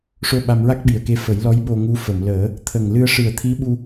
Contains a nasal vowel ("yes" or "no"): no